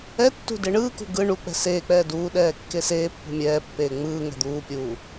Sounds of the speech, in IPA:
ɛ tː ṳ d e ɳ ɯː k ṳ ɡ ɯ ɳ u k͡p ɛ̤ s eː k͡p ɛː d uː ɗ ɛː kː e s eː pː ṳ mʲ ɛː pː eː ŋ͡m ɯː ŋ ɛ̤ d̪ uː pʲ uː

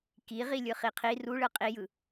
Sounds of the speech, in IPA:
k i ʁ i lʲ ɯ χ i qʰ i r u ɭ ɯ qʼ i j ɯ

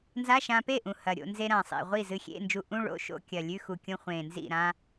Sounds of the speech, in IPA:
n z a˧˥˧ ʃ ã˧ p e˥˩ ʔ ũ˨˩ h ɐ˨˩ ɾʲ o̰˧ n z e˧ ɾ ã˨˩ sˤ ḭ˨˩ ʁʷ i˥˩ z ɨ˧ xʲ ḛ˧˥˧ n d͡ʒ u˧ ʔ ũ˧˥˧ ɭ o̰˧˥˧ ʃ o̰˧˥˧ kʲ ɐ˨˩ lʲ ʉ˧˥˧ x u˨˩ kʲ õ˧ χʷ ẽ˨˩ n z ḭ˥˩ ɾ ã˧

